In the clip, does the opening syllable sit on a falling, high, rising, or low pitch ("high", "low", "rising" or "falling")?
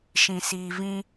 low